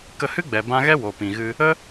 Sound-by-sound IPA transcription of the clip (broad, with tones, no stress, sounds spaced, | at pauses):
k ə˧ h ɨ˦ ɡ͡b ɛ˨ b ã˧ ɣ ɛ˦ w o˨ p ĩ˨ ɣ ɨ˧ | ə˦